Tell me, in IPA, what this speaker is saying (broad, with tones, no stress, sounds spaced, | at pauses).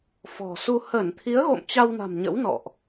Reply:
f ɔ̤˨˩ s u˧ h ə˧˩ n t̪ʰ i˨˦ ə̯ ɣ o̰˧˨ m t͡ɕ a˧ w n a̤˨˩ m ɲ ə̰˧˥ w n ɔ̰˧˨ ʔ